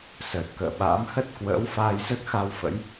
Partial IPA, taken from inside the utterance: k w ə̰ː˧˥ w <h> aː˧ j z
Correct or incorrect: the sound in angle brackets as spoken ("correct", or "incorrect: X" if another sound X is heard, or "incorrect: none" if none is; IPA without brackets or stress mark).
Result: incorrect: f